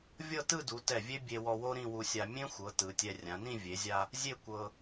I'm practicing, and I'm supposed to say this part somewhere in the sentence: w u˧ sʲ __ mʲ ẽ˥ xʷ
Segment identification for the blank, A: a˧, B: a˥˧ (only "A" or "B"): A